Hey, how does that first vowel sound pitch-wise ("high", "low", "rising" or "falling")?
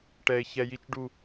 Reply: low